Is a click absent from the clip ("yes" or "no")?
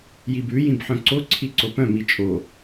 no